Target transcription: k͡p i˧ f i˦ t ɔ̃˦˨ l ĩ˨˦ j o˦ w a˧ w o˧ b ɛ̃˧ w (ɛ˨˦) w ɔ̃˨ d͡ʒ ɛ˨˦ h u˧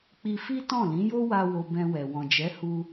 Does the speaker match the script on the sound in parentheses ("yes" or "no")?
no